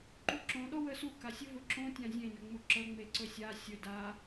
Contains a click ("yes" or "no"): yes